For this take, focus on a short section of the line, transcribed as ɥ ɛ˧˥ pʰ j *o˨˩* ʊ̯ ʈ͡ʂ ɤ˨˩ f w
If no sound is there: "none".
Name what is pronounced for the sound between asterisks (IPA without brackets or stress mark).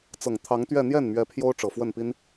o˥